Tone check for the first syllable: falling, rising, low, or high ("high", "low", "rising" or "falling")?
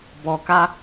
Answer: low